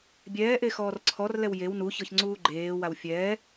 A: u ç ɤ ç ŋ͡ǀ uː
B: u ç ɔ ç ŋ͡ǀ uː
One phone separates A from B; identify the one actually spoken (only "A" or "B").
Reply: A